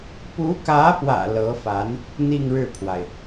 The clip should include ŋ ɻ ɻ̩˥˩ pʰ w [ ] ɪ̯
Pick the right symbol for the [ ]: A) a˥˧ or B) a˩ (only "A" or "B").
B